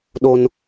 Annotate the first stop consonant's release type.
implosive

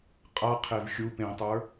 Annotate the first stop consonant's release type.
ejective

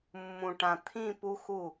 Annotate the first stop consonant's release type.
plain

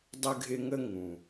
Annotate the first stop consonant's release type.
plain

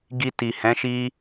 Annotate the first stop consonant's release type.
plain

